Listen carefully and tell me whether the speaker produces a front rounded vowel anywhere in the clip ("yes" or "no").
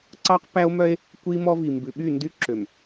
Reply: yes